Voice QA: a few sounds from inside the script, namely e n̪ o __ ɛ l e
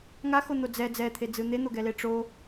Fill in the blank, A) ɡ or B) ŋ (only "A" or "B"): A